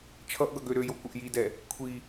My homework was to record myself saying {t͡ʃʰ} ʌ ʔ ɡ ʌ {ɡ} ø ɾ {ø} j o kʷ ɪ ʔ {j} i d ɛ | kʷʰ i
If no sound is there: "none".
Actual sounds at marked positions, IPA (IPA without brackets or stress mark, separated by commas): t͡ʃʰ, ɡ, ø, j